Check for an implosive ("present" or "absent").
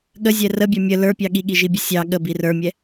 present